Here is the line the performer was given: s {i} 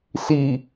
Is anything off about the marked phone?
no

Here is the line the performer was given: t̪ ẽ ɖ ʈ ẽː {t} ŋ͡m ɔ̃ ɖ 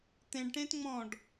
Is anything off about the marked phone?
no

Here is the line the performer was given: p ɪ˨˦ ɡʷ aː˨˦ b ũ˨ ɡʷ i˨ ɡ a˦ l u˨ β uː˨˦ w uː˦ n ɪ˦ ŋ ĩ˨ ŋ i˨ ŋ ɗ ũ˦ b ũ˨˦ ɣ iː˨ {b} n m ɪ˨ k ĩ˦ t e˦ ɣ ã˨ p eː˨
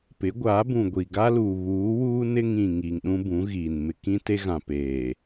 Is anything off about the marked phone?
yes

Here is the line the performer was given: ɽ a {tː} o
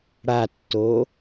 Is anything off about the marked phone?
no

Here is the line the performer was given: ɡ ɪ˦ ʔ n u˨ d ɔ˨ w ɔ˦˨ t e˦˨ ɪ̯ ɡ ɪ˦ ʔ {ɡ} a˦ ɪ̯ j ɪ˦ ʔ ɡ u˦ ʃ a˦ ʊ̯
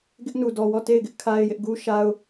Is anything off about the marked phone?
yes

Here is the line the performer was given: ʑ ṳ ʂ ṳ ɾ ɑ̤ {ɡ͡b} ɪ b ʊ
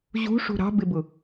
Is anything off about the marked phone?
yes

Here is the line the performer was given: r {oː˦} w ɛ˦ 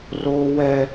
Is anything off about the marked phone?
no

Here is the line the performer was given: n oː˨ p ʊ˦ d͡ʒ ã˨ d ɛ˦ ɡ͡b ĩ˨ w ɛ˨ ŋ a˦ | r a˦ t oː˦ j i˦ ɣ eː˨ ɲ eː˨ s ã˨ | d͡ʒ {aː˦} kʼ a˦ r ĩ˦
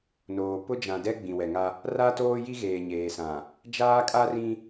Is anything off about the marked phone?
no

